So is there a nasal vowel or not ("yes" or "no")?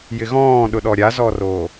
yes